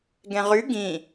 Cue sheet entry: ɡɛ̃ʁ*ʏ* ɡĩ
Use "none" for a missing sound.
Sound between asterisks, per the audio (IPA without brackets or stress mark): y